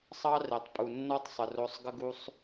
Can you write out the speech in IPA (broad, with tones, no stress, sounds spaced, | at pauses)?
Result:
sˤ ɑ˦ r e˨ tˤ pʼ u˨ nː ɔ˦ tˤ sˤ ə˨ r o˧ sˤ ɡ ə˦ ɡ u˧ sˤ